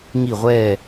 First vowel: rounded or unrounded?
unrounded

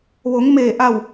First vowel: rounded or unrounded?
rounded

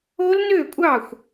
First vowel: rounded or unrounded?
rounded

